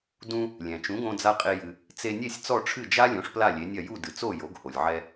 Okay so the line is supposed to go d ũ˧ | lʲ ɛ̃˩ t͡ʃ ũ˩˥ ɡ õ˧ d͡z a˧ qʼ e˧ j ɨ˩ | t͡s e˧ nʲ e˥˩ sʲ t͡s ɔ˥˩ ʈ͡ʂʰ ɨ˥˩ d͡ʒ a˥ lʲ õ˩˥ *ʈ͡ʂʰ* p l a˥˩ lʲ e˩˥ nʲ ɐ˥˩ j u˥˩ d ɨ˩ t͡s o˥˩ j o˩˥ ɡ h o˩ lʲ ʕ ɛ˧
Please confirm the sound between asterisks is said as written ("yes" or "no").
no